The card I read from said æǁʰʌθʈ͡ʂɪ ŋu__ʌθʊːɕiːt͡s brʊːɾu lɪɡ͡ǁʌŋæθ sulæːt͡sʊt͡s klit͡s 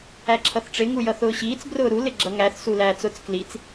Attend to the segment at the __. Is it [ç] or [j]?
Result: j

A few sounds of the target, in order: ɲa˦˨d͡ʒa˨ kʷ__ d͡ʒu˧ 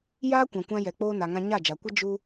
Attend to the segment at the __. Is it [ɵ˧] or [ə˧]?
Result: ə˧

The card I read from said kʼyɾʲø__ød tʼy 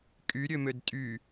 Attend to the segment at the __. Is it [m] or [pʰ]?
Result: m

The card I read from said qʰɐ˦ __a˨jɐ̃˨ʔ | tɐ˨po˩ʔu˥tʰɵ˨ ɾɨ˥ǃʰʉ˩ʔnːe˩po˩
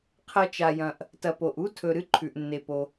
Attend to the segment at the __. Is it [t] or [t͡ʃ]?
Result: t͡ʃ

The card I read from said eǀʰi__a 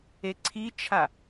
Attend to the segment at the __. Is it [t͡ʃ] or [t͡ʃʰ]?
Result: t͡ʃʰ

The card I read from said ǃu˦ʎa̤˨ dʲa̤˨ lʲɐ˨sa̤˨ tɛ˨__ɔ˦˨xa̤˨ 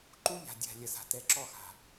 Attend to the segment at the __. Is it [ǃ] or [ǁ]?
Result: ǁ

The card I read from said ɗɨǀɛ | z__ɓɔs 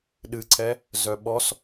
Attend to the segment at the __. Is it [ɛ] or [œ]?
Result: œ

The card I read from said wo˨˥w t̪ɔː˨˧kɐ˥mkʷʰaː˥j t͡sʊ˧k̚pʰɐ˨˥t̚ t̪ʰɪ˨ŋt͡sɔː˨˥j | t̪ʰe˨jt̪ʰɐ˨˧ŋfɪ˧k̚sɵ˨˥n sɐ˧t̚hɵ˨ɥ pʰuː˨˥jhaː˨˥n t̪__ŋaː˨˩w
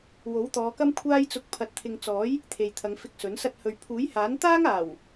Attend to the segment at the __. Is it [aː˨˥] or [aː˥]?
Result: aː˥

